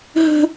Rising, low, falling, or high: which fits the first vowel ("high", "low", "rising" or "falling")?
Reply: high